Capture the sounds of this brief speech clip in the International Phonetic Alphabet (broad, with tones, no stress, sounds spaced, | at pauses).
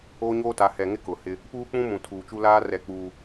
oː˦ ɲ oː˦ t a˨˦ h ɛ˨ ŋ ɪ˦ k ʊ˨ h ɪ˦ | p uː˦ k͡p ũ˦ m ũ˨ tʰ uː˨ t͡ʃ u˦ l aː˦ r ɛ˦ k͡p uː˦